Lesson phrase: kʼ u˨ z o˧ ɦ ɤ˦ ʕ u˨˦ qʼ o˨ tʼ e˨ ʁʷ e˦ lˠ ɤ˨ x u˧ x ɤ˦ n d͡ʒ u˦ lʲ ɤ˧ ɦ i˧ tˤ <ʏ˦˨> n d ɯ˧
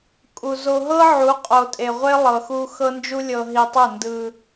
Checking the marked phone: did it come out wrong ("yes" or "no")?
yes